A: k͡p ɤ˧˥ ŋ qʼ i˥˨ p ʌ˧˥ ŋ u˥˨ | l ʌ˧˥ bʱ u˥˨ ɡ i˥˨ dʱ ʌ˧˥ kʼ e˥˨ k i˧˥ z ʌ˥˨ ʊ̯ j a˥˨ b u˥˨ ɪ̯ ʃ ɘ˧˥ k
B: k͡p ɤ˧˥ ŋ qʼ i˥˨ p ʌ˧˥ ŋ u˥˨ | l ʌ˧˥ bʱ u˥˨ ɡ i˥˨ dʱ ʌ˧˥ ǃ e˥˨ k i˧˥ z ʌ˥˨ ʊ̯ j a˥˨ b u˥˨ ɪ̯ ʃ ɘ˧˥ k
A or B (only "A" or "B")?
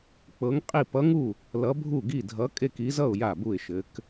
A